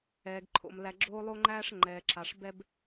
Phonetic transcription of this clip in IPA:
ɛː˩ ɡ ǃʰ o̰˩ m l æ˨ ɡ͡ǁ oː˥ lˠ o˥ ŋ͡ǃ æː˥ ʂ ŋ͡ǃ ɛː˩ ǁ a˩ ʂ b ɛ˦ b

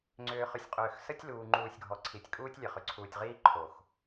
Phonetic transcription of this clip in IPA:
ŋ͡ǀ ʏː˨ χ ʏ˨ sʲ qʼ ʏː˨ x s ə˦ tʲ l uː˨ ŋ͡ǃ uː˨ sʲ ɡʱ ɔ˨ ǀʰ i˨ tʲ kʼ uː˦ tʲ lʲ ə˨ χ ʏ˨ ǀʰ uː˨ tʲ ʁ iː˦ ǃʰ o˨ x

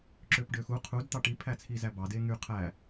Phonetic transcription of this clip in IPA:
ǁ ø p ɖ ø x u qʰ u d t̪ ɑ ʈ i pʰ æ t͡sʰ i z æ b ɑ d e ŋ y qʰ æ

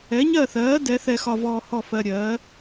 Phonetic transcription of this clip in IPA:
ɛ˨˥ ɲ ɜ˥˨ θ ɜː˨˥ d ɛ˨˥ θ ɛ˧ x ɒ˧ v ɔː˧ h ɔ˥˨ f ɜ˧ ɾʲ ɜː˨˥

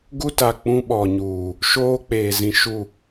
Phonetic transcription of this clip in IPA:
ɡ u˦ t a˨ k͡p ũ˦ ɓ ɔ˨ ɲ uː˨ | ʃ oː˦ k͡p eː˨ z ĩ˨ ʃ u˦˨

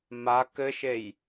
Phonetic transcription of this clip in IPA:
m a k ɘ ʃ e j

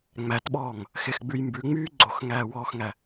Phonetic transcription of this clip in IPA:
ŋ͡m æ t ɓ ɔː ŋ | x ɪ x ɡ͡b ʉ j m b ʉ ŋ͡m yː ɡ͡ǀ o x ŋ æː w ɔː x ŋ æ

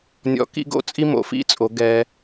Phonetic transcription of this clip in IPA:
nʲ ɔ̰˧˥ k ḭ˥ ɡ o̰˥ t͡sʼ i˥ m o̰˩˧ f ḭ˧˥ t͡sʼ o˩˧ ɡ ɛ˧

